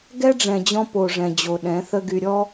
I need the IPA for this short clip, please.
ɡ ɛ˦ ɖ͡ʐ ɛ̃˨ d͡ʑ ɔ̃˧ p o˨ ʐ ɛ̃˨ d͡ʑ o˨ ɗ ɛ̃˨˦ θ ə˧ ɡ y˨ ɾʲ ɔ˦

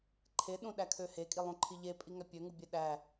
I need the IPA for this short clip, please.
ǃʰ e ɗ ũ ɗ æ kʰ ø h e kʼ i lˠ ũ ǃʰ i ʎ e pʼ i ŋ æ pʲ ø ŋ u bʲ e ɗ æ

